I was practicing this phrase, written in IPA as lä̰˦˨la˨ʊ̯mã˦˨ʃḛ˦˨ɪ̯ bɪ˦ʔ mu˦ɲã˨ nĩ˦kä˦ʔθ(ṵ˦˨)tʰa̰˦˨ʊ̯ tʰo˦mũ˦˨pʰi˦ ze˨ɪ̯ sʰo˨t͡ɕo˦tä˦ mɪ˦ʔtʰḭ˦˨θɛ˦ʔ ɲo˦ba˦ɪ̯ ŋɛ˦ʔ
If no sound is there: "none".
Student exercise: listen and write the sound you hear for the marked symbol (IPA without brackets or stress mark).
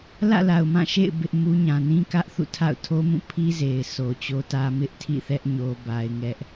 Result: ṵ˦˨